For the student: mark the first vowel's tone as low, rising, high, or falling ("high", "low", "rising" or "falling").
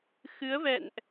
rising